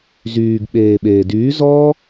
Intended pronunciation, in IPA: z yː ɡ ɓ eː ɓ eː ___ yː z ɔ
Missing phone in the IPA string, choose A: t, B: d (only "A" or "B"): B